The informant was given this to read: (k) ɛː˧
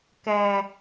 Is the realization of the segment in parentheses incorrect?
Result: no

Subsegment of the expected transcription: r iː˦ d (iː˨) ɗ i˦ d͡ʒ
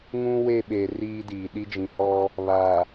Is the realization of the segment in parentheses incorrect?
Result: no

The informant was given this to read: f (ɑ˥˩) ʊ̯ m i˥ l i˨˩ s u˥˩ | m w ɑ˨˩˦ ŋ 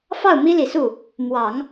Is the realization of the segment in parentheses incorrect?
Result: no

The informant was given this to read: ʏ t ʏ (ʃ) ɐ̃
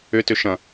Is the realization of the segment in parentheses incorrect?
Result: no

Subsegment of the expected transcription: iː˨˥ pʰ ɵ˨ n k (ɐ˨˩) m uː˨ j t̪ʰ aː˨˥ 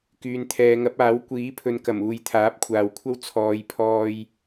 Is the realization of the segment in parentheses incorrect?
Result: no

